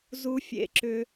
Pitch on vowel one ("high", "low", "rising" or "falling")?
high